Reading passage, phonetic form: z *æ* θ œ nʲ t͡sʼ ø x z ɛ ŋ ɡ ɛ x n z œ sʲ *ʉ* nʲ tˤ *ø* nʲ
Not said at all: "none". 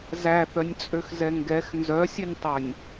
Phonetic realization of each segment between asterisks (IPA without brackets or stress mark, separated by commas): æ, ʉ, œ